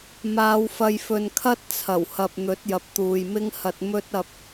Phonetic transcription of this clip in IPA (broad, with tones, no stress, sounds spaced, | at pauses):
m aː˨˧ w f ɐ˧ j f ɵ˨ n kʰ ɐ˥ t̚ t͡sʰ ɐ˨˩ w h ɐ˨ p̚ n̪ ɵ˨˥ t̚ j ɐ˨ p̚ t̪ uː˨ j m ɪ˥ ŋ h ɐ˧ t̚ m ɵ˥ t̚ ɐ˧ p̚